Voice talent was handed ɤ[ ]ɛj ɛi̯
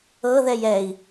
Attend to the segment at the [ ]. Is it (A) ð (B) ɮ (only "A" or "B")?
A